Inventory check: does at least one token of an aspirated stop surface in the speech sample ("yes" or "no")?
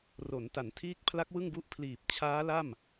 yes